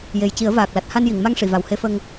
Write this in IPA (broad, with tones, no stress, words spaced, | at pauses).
je˨˩jci˨˩˦ə̯vaː˨˩k̚la˨˩t̚ ha˧nji˨˩˨ŋma˧ŋʂi˨˩˨ va˨˩whe˧fə˧ŋ